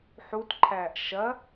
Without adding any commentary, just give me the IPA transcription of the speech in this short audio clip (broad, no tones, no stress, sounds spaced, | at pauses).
ħ u t ǃʰ æː ʔ ʃ ɐ